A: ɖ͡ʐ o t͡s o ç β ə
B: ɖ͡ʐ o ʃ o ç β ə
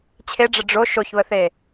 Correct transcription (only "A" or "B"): B